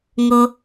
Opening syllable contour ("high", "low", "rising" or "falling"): low